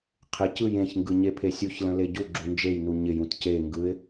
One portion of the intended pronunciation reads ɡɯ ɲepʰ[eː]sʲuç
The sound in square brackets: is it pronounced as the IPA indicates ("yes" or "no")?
no